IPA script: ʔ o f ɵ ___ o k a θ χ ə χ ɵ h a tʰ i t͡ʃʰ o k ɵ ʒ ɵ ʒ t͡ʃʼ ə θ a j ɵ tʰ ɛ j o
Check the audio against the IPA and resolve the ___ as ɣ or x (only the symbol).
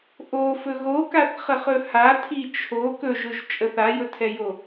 ɣ